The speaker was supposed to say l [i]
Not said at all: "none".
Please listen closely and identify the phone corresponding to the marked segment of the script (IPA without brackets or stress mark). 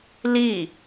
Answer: i